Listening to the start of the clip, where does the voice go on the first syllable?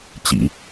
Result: low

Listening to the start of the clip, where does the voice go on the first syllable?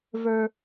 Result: high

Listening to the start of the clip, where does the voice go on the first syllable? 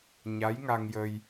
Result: rising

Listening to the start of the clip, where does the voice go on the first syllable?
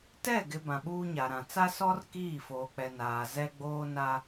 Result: falling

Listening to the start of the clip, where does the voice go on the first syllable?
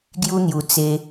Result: high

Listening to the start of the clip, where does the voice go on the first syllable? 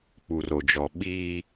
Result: low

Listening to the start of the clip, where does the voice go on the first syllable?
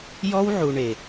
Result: high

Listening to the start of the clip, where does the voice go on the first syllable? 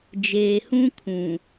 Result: low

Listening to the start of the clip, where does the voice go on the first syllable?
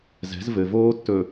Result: rising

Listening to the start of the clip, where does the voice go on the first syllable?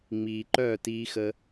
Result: low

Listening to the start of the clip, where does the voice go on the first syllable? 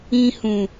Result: high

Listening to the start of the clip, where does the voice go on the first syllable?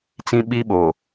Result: high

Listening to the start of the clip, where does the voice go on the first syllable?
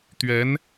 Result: rising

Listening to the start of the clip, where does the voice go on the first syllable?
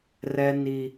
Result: high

